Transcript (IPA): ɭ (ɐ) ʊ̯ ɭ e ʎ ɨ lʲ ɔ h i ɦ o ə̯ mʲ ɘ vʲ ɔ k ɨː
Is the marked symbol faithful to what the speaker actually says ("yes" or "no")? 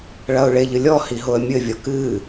yes